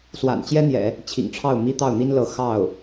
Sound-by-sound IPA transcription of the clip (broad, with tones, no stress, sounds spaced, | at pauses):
s w a̰˨˩ n t͡ɕ j ɛ˥ n̪ j ɛ̰˨˩˦ | t͡ɕʰ ḭ˨˩ ŋ ʈ͡ʂʰ ɑ˥˩ ʊ̯ m i˥ t̪ ɑ˥˩ ʊ̯ n̪ i˥ n l ɤ˧˥ x ɑ˥˩ ʊ̯